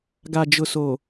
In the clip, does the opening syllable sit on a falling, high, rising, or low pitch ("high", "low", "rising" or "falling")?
low